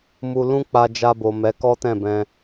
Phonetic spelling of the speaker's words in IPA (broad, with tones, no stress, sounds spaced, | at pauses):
m u˧ l ũ˦ k͡p a˧ d͡ʒ a˧ b o˨ m ɛ˨˦ k ɔ˦ t ɛ̃˦˨ b ɛ̃˧